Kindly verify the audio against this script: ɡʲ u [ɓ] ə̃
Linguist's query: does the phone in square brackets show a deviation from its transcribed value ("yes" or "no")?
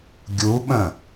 no